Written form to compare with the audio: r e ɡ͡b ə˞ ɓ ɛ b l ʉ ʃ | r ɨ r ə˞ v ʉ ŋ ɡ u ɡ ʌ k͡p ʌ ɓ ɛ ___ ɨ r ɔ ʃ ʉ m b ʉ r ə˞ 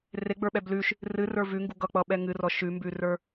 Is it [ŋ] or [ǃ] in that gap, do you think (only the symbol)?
ŋ